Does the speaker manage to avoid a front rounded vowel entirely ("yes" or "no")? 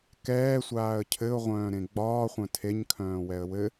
no